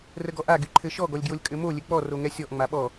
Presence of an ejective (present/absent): present